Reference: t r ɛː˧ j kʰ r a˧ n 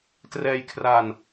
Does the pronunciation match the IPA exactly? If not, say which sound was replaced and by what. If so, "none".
none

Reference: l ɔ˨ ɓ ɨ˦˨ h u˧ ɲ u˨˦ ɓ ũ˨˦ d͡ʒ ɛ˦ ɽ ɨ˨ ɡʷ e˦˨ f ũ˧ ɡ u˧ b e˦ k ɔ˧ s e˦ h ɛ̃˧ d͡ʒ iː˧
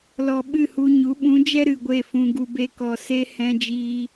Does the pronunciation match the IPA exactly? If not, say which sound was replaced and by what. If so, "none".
ɽ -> ɾ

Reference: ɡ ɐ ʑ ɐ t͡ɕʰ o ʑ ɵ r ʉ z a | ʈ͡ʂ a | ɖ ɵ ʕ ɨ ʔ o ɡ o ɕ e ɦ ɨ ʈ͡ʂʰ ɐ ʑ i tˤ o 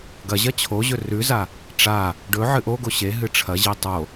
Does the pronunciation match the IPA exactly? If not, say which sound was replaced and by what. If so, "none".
none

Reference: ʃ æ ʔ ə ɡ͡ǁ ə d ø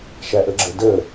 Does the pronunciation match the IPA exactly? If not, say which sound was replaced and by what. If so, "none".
ø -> ə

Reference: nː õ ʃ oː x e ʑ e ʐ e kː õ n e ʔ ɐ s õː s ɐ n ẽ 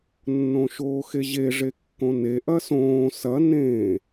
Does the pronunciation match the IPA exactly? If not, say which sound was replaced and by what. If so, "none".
none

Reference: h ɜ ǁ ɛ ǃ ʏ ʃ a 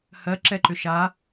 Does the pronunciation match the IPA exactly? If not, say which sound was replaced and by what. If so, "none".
none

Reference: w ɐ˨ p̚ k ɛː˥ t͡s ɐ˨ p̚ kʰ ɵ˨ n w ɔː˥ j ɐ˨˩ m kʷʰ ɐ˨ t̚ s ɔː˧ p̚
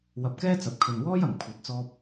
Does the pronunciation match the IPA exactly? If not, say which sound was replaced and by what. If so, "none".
s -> t͡s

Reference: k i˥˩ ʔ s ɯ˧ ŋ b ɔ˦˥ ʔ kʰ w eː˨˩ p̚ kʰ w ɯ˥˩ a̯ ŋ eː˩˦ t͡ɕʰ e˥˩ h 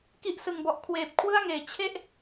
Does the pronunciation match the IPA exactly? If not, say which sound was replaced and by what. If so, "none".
h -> ʔ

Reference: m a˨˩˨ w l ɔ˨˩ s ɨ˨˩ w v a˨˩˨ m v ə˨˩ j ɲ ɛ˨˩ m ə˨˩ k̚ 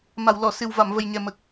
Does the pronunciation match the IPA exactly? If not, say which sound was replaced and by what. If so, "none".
ɔ˨˩ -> ɔ˨˩˨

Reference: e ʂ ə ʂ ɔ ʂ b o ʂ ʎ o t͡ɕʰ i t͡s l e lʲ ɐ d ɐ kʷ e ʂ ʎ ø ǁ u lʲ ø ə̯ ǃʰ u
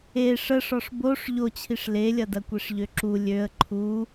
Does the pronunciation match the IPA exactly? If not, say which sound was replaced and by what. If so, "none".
t͡s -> ʂ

